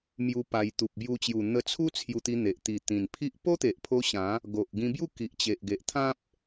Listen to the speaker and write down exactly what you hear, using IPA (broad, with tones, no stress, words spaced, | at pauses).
mju˧ pa˧j t̪u˨p̚bju˧t͡ɕju˨˩ n̪ə˧t͡sʰu˦ t͡sʰju˧t̪i˧ n̪e˨ʔ t̪i˨˩ t̪ĩ˨˩npʰi˦ʔ po˦t̪e˨ʔpʰo˧ ɕã˨˦ | ɡo˨ʔɡĩ˧bju˥˧ ki˨ʔt͡ɕe˨ʔɡe˨ʔ t̪ʰã˦p̚